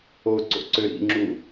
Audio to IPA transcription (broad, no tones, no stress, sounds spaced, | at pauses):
o ǀ o̰ ǀ ø ɾ ḭ ŋ͡ǁ u